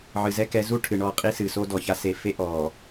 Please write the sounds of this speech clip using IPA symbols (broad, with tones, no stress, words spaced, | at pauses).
ʕɨ˨zɛ˦kɛ˨˦ zu˦ʈʰɨ˨ ɳɔ˦˨qʼi˦ sɨ˨so˦ dɔ˨ça˦ se˨fe˦ ʔɔ˨